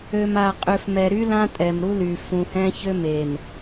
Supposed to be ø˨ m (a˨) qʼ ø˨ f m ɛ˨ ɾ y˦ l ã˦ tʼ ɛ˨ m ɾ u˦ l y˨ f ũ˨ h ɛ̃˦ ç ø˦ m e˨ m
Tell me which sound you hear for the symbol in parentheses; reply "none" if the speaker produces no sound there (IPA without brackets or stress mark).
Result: a˨